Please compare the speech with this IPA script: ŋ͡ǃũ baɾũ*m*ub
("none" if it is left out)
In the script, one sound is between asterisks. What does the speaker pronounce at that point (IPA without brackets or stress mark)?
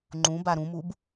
m